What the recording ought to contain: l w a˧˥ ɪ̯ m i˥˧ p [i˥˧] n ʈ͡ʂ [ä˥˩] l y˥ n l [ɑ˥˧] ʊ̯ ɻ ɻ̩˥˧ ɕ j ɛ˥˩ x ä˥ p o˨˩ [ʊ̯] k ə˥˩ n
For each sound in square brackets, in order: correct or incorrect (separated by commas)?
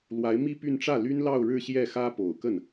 incorrect, correct, correct, correct